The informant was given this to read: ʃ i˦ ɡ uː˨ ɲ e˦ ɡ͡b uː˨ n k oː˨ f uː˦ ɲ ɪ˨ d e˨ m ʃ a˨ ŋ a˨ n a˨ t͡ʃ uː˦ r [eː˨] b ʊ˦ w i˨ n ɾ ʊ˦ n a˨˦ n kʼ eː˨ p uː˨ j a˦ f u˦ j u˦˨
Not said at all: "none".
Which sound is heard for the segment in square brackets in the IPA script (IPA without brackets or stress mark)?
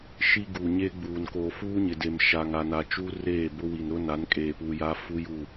eː˦˨